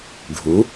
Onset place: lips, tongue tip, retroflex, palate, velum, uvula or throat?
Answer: retroflex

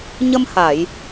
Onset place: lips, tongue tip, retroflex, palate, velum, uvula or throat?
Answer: palate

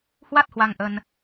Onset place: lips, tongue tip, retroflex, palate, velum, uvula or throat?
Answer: throat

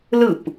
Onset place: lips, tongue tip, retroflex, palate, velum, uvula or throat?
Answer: tongue tip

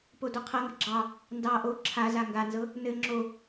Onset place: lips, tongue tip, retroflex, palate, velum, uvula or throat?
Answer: lips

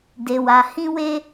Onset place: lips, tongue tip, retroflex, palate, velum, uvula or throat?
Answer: tongue tip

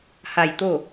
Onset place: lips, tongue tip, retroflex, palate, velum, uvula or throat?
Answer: throat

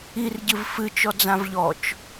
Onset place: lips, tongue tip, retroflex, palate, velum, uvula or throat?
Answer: tongue tip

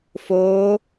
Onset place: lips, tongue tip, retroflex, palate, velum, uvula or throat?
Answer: lips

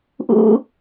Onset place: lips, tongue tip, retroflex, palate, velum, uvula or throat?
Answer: throat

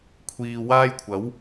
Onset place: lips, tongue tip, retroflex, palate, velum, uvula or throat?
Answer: velum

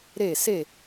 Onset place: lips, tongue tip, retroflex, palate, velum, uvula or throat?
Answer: tongue tip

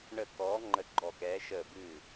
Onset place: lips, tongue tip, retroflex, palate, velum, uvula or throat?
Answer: retroflex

